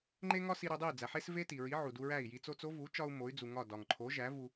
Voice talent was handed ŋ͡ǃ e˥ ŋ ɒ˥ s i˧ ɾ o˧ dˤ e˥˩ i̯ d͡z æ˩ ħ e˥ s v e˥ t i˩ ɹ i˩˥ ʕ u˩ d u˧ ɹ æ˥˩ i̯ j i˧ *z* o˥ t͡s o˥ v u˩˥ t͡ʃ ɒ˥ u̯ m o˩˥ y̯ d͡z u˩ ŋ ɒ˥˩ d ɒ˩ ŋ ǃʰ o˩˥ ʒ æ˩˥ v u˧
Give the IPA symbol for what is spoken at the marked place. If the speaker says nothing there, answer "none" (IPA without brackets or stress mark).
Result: t͡s